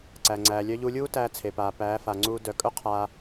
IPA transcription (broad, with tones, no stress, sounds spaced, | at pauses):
ǀ æ˨ ŋ͡ǀ æː˨ lʲ œ˧ ʎ u˧ lʲ uː˦ t æː˧ t͡sʰ e˨ p aː˨ p æː˨˦ f a˨ ŋ͡ǀ uː˧ d œ˨ kʼ œ˦ qʰ aː˧